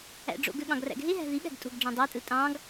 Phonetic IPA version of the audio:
æ̰ ɖ͡ʐ o̰ ɡ ø ɠ ɑ̃ ɡ r æ̰ ɡ ɦ e ɦ æ̤ ð i ɠ æ̤ ɡ tʼ o̤ ɡ ɖ͡ʐ ɑ̃ dˤ æ tʼ ɯ tʼ ɑ̃ ɡ

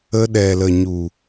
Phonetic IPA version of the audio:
ə˧ ɗ ɛ˨ l ə˨ ɲ u˨

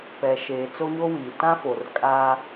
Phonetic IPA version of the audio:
p ɛ˨ ʃ eː˨ t͡s o˦ ɲ o˦ w iː˨ t ã˦ f o˨ r kʼ a˦

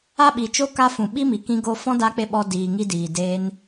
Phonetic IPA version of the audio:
a˦ ɓ i˨ t͡ʃ o˦ k a˧ f ũ˨ ɓ i˦ m i˨ k ĩ˧ ɡ o˧ f ɔ̃˦ d a˦ k͡p e˦ ɓ ɔ˧ d iː˨ ŋ i˧ d iː˨ d eː˧ n

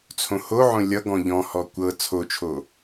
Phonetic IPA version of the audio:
t͡sʰ õ h o ʕ õ lʲ ʌ ɡ ɔ̃ ʎ ɔ̃ h ɔ kʷ ɤ t͡sʰ o t͡ʃʰ o

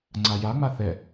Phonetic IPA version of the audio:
ŋ͡ǀ a j a ŋ͡m a θ ɛ

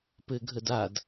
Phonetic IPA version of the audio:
p ɘ ɡʱ ə d a d

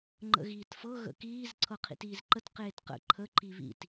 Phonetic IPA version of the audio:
ŋ͡ǃ ə̰ ɣ iː t f ɤ ɣ ə̰ k iː z ǀʰ ɤ qʰ ḭ t iː z ǃ ə t q eː t q ə̰ ǃʰ ə ǃ i β ḭ t

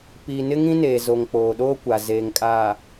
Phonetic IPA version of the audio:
p iː˨ n ɪ˦ ŋ ĩ˦ n eː˨ z o˨ ŋ k͡p oː˨ ɗ oː˦ kʷ a˨ z eː˨ ŋ kʼ aː˨

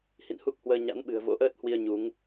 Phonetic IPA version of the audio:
h ḭ˧˨ n h u˦˥ k̚ h w əː˧ ɲ a̰˧˥ n ɓ ɨ̤˨˩ ə̯ v o̰˧˥ ʔ əː˦˥ t̚ h w i˧ ə̯ ɲ u˨˦ ŋ

